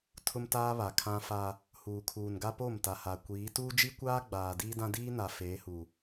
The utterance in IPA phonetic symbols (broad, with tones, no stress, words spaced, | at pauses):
tʰʊ˦mtaː˦ βa˨kʰã˦fa˦ | huː˨kʰuː˨n ɡa˦po˦˨mta˨ha˨ kʷiː˨˦ tuː˦d͡ʒi˦kʷaː˦ ɡ͡baː˨diː˦dã˦ diː˦na˨ feː˨˦hu˨